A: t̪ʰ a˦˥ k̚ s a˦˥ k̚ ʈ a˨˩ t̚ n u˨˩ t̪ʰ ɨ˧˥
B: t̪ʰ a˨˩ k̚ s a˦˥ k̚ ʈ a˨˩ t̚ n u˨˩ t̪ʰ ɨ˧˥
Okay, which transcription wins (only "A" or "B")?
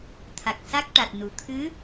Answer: B